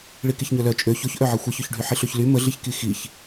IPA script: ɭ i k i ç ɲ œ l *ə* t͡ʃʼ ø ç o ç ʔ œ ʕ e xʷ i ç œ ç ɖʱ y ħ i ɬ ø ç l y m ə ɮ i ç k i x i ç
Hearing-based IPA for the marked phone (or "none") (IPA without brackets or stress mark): œ